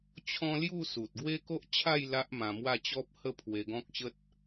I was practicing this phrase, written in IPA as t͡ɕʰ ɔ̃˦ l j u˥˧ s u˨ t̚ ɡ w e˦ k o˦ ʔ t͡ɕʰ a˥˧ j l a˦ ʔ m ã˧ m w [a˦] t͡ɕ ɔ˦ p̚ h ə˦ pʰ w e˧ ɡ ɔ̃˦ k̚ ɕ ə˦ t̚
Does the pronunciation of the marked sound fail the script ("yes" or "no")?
yes